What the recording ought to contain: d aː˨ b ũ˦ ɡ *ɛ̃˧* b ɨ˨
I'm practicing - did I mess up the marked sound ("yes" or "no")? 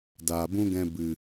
no